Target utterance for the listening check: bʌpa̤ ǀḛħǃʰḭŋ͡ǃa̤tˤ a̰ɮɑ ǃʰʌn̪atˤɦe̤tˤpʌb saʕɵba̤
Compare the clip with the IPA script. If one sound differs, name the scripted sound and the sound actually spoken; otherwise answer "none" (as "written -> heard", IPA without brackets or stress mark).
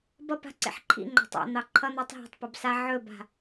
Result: ɮ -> n̪